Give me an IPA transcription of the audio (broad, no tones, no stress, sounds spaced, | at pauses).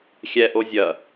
xʲ ɛ ʔ o zʲ ɐ